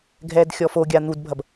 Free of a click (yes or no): yes